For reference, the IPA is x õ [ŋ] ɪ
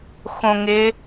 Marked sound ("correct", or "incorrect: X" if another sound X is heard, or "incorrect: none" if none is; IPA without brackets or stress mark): correct